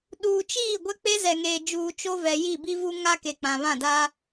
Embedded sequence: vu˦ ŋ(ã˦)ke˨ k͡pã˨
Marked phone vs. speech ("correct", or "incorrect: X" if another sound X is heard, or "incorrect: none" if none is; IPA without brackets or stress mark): incorrect: a˦